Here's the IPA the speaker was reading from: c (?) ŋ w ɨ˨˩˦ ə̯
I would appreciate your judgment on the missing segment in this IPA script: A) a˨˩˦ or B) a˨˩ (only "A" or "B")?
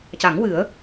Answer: A